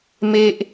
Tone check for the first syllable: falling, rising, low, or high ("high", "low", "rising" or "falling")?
high